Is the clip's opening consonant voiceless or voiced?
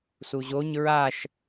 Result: voiceless